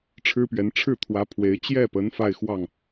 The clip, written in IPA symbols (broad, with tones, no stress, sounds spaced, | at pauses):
ʈ͡ʂʰ ɻ̩˥ p ɥ ɛ˧˥ n ʈ͡ʂʰ ɻ̩˥˩ t̪ʰ w ä˧˥ pʰ w e˧˥ ɪ̯ t͡ɕ j ɛ˥˩ p ə˧˥ n f a˥˧ ɪ̯ x w ɑ˥˩ ŋ